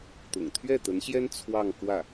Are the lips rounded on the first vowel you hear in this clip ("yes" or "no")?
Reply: yes